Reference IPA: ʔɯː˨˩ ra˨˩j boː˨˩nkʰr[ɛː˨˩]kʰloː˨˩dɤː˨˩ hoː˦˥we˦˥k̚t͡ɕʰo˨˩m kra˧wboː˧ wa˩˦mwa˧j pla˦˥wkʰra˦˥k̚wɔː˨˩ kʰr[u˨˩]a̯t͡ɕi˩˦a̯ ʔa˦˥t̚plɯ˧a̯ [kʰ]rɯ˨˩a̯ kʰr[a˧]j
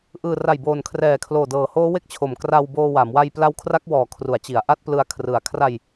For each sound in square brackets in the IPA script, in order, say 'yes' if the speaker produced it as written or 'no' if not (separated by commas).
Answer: yes, no, yes, yes